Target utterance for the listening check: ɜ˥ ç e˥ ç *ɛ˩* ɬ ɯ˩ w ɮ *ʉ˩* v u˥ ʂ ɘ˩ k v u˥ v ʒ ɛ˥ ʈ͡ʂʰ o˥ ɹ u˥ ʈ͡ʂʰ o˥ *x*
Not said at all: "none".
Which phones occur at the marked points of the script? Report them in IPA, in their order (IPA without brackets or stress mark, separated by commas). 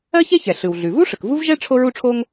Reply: ɛ˩, ʉ˩, ŋ